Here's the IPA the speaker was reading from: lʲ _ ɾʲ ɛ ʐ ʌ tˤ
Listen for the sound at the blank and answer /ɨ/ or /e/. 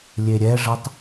e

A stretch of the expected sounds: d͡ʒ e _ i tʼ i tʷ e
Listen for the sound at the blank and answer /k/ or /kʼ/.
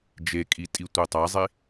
kʼ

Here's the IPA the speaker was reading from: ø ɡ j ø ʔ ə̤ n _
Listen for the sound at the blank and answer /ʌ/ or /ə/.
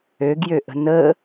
ə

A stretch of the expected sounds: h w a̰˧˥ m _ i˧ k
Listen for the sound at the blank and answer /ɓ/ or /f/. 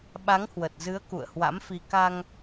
f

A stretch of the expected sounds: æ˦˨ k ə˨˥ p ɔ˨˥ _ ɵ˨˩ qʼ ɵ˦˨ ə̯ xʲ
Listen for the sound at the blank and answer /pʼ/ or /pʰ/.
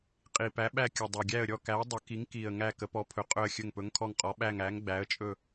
pʰ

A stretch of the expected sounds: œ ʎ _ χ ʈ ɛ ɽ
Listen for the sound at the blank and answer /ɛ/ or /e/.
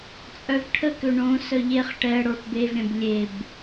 e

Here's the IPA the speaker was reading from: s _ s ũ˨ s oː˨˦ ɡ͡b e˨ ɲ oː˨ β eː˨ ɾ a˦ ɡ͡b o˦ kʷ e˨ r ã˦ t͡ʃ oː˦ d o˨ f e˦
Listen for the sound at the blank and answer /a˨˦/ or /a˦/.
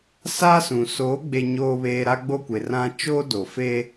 a˦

